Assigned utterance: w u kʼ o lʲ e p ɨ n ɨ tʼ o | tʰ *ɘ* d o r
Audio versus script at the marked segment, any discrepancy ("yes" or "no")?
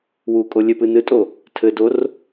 no